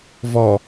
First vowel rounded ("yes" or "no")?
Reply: yes